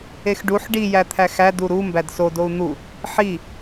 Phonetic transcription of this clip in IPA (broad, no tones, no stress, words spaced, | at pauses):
exɖuħ ɖi jæt̪ʰæxæ duɾu mbædso dou̯n̪u | ħi